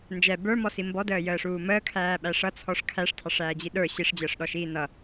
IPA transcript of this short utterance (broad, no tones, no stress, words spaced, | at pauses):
nd͡ʒɛ bə˞mɔsi mbɔdəːjəːʂuː məːkʰæːɓæ ʂʌt͡sʰɔʂ kʰæʂtʰɑʂæːd͡ʑi ɗə˞ ɕiʂd͡ʑəːʂɗɔʃiː nʌ